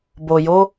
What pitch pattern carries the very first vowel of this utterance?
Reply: low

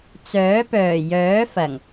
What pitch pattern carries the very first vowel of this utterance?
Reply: rising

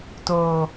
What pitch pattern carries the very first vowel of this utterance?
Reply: low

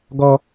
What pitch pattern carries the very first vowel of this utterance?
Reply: high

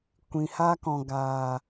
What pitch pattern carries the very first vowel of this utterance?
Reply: low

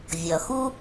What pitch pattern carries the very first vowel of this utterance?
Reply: low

